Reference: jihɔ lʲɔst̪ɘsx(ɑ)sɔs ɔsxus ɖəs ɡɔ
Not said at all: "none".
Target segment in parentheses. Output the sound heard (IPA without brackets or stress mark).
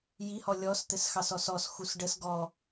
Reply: ɑ